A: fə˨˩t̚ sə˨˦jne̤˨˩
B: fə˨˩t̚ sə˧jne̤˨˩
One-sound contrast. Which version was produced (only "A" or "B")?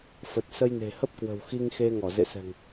B